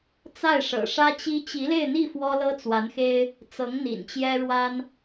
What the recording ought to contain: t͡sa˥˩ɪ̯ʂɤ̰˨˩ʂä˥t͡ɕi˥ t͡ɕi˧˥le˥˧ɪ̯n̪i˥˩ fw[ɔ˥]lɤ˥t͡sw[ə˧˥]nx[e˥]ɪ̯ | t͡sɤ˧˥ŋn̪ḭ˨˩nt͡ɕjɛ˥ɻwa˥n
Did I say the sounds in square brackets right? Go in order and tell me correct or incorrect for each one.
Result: correct, incorrect: a˧˥, correct

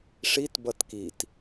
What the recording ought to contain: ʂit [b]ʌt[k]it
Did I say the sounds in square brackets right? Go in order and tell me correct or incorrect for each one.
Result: correct, correct

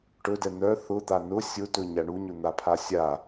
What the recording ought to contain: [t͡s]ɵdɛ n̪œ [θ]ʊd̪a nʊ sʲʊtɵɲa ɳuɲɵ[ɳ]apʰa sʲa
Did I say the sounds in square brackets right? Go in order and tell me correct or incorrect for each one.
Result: incorrect: ʈ, correct, incorrect: n̪

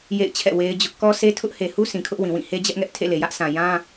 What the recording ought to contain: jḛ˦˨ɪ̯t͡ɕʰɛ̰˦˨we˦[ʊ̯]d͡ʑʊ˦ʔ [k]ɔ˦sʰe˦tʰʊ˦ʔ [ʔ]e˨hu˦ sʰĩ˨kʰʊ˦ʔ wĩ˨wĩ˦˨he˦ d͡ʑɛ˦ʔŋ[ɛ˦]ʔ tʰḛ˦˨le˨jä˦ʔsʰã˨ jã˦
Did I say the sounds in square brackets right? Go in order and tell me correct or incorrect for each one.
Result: incorrect: ɪ̯, correct, incorrect: h, correct

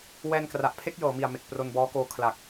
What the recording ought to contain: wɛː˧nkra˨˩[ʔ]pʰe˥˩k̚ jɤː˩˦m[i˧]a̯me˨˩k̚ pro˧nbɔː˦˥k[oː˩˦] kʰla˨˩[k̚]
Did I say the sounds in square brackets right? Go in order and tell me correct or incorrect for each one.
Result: correct, incorrect: i˨˩, incorrect: oː˦˥, correct

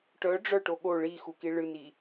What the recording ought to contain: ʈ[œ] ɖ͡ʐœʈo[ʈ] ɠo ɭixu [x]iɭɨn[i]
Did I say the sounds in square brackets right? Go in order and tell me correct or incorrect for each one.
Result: correct, incorrect: none, incorrect: k, correct

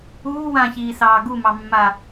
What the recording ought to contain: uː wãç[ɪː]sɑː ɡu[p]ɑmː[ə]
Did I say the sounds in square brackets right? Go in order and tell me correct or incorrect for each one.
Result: incorrect: iː, incorrect: m, incorrect: a

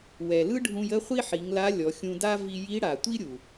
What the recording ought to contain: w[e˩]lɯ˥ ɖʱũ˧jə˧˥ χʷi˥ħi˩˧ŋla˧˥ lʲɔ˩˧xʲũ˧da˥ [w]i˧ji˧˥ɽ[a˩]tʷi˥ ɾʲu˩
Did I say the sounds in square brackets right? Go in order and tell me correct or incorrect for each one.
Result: incorrect: ɛ˩, incorrect: v, correct

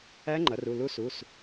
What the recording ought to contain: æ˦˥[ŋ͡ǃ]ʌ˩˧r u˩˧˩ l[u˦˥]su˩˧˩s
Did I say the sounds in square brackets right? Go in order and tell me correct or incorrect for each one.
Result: correct, correct

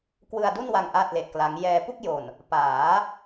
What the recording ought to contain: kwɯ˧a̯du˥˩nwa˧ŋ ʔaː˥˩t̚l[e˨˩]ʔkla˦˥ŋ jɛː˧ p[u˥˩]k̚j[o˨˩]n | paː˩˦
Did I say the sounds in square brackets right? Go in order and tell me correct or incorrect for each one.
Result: correct, correct, correct

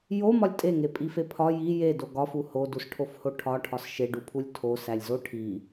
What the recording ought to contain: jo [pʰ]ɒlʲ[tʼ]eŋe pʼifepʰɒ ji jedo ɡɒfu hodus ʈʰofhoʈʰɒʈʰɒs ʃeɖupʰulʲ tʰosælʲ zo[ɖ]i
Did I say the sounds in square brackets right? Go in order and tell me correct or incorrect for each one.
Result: incorrect: m, correct, incorrect: ʈʰ

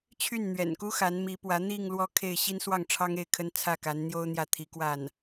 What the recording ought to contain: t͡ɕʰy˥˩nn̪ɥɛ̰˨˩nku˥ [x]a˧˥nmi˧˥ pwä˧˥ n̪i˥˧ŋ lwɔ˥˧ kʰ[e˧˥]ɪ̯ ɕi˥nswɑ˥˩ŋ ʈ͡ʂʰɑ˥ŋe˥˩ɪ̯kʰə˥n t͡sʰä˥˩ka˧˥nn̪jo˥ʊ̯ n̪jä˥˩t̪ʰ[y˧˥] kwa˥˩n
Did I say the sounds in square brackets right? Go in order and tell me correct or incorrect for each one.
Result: correct, incorrect: e˥˩, incorrect: i˧˥

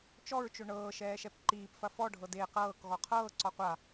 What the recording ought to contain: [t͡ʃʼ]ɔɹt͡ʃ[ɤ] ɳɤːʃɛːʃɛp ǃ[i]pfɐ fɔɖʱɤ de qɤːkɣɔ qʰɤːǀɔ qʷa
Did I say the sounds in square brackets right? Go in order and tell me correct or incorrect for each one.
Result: incorrect: t͡ʃ, incorrect: ɵ, incorrect: iː

